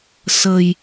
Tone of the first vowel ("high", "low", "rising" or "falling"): low